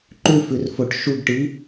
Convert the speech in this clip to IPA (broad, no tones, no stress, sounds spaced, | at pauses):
ǃ ʉ f ʉ r f o ʈ ʃ u ɡ ʈ iː